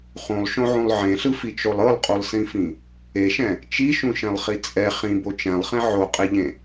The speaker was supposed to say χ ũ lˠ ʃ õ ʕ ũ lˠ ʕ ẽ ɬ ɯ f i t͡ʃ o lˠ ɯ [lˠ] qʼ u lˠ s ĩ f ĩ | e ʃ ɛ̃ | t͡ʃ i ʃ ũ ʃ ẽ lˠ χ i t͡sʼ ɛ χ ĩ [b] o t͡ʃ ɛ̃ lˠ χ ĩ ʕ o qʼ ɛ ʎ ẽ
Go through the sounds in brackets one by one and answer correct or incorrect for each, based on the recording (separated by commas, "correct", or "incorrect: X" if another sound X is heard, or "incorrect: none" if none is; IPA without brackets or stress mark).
correct, correct